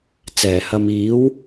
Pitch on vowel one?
low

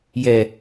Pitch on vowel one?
low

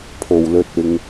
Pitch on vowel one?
low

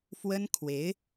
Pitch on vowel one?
high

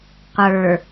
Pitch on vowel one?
low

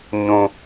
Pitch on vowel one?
low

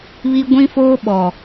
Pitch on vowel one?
high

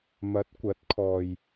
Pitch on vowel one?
rising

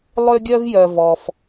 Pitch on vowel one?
high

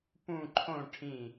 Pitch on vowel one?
falling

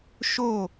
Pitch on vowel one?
falling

